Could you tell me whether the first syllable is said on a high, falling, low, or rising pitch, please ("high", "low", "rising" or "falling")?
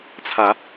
rising